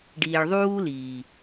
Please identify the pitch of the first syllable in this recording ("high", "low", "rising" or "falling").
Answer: low